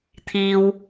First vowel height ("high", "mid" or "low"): high